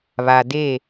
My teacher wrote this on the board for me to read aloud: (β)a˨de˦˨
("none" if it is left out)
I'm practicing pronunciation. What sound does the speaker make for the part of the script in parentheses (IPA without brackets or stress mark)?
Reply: β